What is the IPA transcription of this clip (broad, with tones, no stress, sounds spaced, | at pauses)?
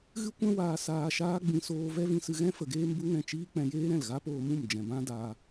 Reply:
ɣ ɨ˦ kʷ ɛ̃˦ w aː˧ s aː˧ ʃ aː˦ ɡ͡b ĩ˧ s oː˧ v ɛ˦ v ĩ˧ s ɨ˧ ɣ ɛ̃˦ f ə˨ ɡ eː˦ m b u˦ ŋ ɛ̃˦˨ t͡ʃ iː˦ k͡p ɛ̃˧ j eː˦ ɾ ɛ̃˦˨ l ɣ a˦ p oː˧ m ũ˦˨ m d͡ʒ ɛ̃˨ b ã˦ d aː˧